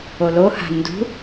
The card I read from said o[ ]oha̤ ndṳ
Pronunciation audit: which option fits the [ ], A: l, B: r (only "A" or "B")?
A